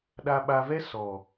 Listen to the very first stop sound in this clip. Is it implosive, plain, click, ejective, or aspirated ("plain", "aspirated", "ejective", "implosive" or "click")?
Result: implosive